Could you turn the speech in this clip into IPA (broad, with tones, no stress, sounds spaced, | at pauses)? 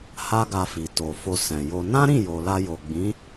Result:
h a˦ ɡ a˧ f i˨ t o˨ f o˧ s ɛ̃˨ j o˧ n ã˦ ɾ ĩ˦˨ j o˨ l a˧ j o˨ ɡ͡b ĩ˨˦